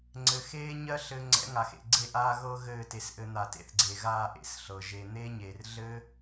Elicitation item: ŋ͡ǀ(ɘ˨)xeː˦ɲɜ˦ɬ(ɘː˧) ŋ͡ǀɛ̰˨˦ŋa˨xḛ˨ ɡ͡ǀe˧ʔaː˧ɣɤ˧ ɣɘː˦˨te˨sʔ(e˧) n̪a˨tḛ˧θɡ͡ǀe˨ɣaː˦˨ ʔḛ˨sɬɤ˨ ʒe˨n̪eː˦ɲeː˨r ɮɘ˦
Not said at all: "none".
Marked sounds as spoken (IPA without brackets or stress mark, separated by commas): ɘ˨, ɘ˧, ɘ˧